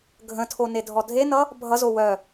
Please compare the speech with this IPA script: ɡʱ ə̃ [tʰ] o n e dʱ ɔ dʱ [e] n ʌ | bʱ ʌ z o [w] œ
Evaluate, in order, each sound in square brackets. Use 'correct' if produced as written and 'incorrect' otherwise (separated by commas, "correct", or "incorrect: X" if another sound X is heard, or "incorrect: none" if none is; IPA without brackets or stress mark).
correct, correct, correct